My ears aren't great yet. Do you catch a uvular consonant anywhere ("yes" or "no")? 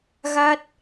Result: no